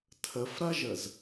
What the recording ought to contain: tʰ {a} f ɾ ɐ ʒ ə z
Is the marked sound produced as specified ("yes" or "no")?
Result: no